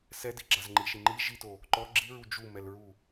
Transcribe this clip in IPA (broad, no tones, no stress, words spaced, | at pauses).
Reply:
sɛdiɡ͡ǁaz ŋ͡ǃiʃi ŋ͡ǃi ʒito | ǃɔ ɡ͡ǁiɹu d͡ʒumɛlɹu